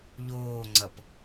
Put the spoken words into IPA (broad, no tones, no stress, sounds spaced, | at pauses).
ʎ oː ŋ͡ǀ ʌ p